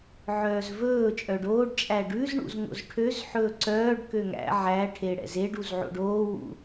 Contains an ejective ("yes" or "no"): yes